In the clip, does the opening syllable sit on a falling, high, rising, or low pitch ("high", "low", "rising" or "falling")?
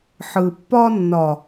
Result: low